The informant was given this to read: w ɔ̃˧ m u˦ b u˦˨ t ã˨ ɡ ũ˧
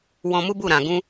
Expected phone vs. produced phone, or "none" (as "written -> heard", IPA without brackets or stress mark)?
t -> ɾ